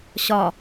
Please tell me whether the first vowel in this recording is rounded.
yes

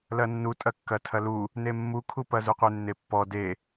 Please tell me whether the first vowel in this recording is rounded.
no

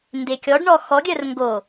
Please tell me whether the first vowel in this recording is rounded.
no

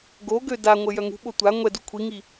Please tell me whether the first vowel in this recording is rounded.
yes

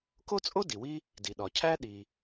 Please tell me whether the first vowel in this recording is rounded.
yes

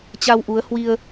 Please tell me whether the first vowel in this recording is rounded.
no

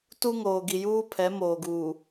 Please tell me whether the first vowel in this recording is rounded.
yes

